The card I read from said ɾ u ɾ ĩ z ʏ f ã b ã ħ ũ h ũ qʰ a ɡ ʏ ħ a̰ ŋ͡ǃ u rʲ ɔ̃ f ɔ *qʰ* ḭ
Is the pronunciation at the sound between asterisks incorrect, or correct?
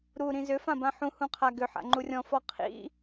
correct